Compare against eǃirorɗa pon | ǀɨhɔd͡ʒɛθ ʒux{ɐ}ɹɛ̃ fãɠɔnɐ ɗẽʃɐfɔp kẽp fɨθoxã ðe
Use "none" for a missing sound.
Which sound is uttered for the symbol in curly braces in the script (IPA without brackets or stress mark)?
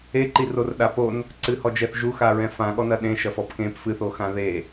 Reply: a